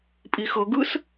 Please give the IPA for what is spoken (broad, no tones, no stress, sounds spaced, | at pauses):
pʼ i x ɤ ɡ ɯ s